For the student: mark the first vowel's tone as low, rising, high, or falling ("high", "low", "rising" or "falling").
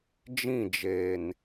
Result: falling